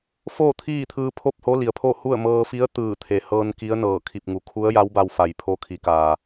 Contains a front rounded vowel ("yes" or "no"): no